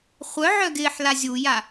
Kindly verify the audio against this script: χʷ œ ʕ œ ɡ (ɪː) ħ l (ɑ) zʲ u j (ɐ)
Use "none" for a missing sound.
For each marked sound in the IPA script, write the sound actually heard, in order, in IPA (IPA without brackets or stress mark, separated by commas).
ɪː, a, a